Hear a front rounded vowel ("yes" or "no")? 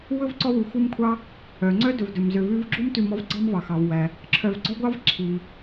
yes